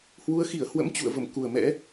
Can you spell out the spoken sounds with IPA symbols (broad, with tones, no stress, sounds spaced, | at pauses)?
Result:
h w u˨˦ ə̯ x i˧˩ ə̯ h w ə̰˧˥ m t͡ɕ ṵ˧˨ ə̯ v ə˧˩ m k u˨˩ ə̯ m ɛ̰˧˥